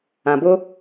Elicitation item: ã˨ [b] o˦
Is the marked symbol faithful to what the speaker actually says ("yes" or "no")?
yes